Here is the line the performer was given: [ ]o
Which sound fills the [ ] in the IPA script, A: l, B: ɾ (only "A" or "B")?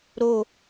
B